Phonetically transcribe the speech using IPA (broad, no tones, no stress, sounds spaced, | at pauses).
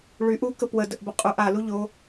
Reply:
ɭ y ʔ u k ə p w ə d ə ʔ b ə qʼ u ʔ a l u ʎ o